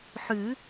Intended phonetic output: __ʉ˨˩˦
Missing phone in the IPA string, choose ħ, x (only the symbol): ħ